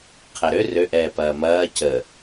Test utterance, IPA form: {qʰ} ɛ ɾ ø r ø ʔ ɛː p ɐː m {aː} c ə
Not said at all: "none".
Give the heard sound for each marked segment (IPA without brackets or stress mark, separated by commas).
qʰ, ɐː